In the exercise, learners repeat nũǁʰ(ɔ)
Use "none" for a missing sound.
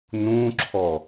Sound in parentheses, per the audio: ɔ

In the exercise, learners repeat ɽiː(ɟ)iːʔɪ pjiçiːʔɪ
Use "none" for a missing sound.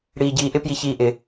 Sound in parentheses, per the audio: ɟ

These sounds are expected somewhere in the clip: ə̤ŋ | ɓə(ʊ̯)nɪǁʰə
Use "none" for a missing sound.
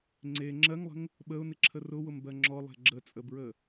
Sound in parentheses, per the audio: ʊ̯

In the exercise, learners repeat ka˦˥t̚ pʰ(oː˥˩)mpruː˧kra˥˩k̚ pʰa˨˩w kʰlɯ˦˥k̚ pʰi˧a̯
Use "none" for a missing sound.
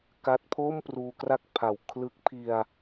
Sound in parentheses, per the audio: oː˥˩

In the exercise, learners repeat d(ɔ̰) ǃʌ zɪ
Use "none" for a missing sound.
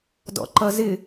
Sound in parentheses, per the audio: ɔ̰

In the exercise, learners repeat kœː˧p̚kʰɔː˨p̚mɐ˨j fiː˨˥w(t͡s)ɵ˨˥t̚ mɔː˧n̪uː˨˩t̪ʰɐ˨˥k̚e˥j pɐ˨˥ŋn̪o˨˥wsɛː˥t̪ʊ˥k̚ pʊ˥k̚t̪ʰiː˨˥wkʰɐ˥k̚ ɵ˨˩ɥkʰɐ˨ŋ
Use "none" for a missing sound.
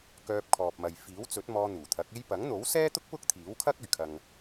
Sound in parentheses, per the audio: t͡s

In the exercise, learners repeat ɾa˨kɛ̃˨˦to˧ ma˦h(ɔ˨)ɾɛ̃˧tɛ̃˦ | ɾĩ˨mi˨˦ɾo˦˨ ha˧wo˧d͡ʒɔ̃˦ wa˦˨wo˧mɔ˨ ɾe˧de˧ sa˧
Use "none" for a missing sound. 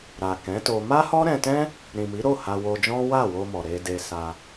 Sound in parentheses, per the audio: ɔ˦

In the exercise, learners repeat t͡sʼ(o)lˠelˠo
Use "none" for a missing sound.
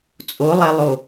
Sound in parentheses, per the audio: o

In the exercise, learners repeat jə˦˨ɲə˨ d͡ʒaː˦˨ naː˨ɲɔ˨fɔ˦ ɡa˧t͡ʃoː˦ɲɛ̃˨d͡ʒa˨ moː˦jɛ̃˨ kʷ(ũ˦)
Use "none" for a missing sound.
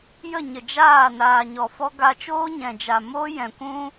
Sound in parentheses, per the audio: ũ˦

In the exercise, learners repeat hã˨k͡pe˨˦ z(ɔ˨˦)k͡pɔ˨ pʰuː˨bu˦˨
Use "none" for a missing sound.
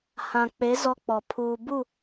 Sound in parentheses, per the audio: ɔ˦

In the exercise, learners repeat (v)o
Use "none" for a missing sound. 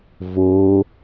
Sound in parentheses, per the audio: v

